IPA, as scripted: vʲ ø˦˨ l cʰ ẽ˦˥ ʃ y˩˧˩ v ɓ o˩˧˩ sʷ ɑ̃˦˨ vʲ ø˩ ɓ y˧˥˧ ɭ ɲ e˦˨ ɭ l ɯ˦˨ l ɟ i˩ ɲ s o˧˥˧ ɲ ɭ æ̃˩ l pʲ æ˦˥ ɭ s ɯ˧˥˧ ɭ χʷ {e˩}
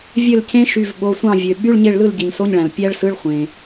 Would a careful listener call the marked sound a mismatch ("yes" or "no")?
yes